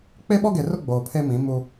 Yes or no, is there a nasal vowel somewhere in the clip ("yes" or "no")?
yes